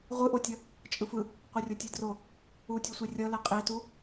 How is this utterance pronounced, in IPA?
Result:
ʁʷɯʔotʲʌ | t͡ʃʼɯfɯ | qʷerʲotʲedro | utʲosʷi rʲʌlɛ qʼetu

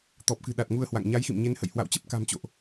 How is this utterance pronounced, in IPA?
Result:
t̪ɔ˨˩p̚kɨ̤˨˩ɗa˨˩t̚ ŋu˧ə̯hwa̰˧˨ŋ ɲa˨˦jxḭ˧˨mɲe˨˦nhə̰˧˨j hwa̰˧˨wt͡ɕə˦˥p̚ka̤˨˩mt͡ɕo̰˧˨ʔ

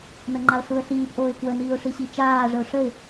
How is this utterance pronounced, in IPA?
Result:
nəŋ͡ǃaə̯ɬuə̯ɬiːp ʔoːɪ̯kwə niːʊ̯ʂiɕit͡ʃaː ʐəʊ̯ʂəɪ̯

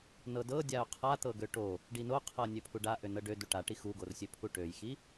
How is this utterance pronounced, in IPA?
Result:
nɤdɤdʲao̯ qʰat̪ɤɡø ʈo | ɖinoqʰɤ nʲøpʰuɖa ʔønɤɖø duʈaʈi xuɡorsʲøpʰu ʈøjxi

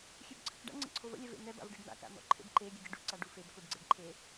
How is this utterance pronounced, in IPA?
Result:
xʲøbǀʰə̰kɖa̰ ŋ͡ǀə̰ǀʰovə̰ lʲɛvḛn̪ɛ ba̰vɖiɖn̪a̰ ka̰n̪ɔ̰ǃʰḛbǃe ɡʲəɡʲɛɖu ǀaɖufeb koɖɡ͡ǀeɖǃʰe

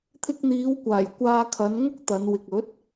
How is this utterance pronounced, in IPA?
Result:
t̪ʰɪ˧k̚n̪iː˨˧wkʷaː˨˩j kʷaː˧kʰɐ˨˧nŋʊ˥k̚ t̪ɐ˨˧nwɪ˨k̚ɵ˨˥t̚

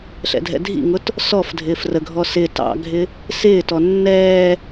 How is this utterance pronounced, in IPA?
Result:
ɬɛ̰dʱɛ̰dʱḭŋʊt | sɔf dʱɪːfrəɡʱɔ sɪ tɑ̰ɡʱɪ | sɪːtɔ nːɛː

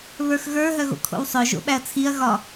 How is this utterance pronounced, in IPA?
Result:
βə˞xɣə˞ ɦœɣo̰kʰo̰wsˤœ ʒo̰ɓæɐ̯t͡sʰiɐ̯ ɣɒ

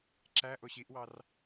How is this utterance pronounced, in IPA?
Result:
ǁæ ʔoɕiʔwɑr

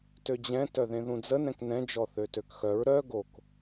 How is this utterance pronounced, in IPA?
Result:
tød͡ʑɛ̃ tœðẽðũd͡zə nɛ̃knɛ̃ d͡ʒɔθøtøkxœɹ ɾœ ɡok

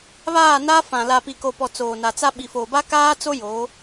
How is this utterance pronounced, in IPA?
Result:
βaː˦˨na˦ fã˨ la˨pi˨ko˨pɔ˨ t͡soː˨na˨t͡sa˦ ɓi˨foː˨ba˦ kaː˦t͡so˦ jo˨˦

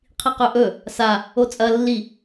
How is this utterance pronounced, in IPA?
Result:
qʰiqɵʔɵ | sa | ot͡sʼɐ lːi

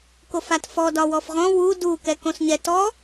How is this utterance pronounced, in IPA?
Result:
kofatfɔ dɒwɔfʁɔ̃ wu du kɛkõsɲɛ tɔ

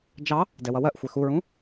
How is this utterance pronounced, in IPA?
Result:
d͡ʒɑ | dɛwʌwɜʔxʷɛ xuɹũ

